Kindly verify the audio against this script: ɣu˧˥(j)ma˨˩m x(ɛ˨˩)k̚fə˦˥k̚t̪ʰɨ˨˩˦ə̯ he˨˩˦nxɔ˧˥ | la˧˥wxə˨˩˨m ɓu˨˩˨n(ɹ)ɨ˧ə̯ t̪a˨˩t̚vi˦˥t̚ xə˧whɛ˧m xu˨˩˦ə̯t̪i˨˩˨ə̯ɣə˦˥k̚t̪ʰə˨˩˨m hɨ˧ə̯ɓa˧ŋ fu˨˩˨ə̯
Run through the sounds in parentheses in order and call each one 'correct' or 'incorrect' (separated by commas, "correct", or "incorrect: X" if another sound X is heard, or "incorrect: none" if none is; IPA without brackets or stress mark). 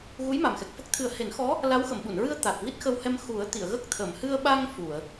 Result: correct, correct, correct